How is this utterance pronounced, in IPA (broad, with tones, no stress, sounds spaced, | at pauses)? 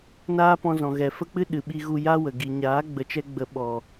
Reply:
n aː˦ p ɔ̃˧ z ɔ̃˨ ɣ ɛ˨ f ə˦ k͡p ɨ˦ ɗ ɨ˨ ɓ i˧ ɣ u˧ j a˦ w ə˨ ɡ i˨ ɲ aː˨˦ ɡ͡b ə˨ t͡ʃ ɛ˧ ɡ͡b ə˨ ɓ ɔ˨